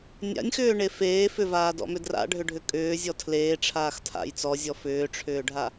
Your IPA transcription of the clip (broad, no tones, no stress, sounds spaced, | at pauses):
nʲ a̰ nʲ x ʏː ɳ e f eː f ʏ v aː d ɔ̰ m ʏ d r a̰ ɖʱ ʏ ɖʱ ʏ kʼ ʏː zʲ ɔ tʰ l eː ʈ͡ʂʰ aː x tʰ a̰ j t͡s ɔ zʲ ɔ f ʏː ʈ͡ʂʰ ʏː ɖʱ a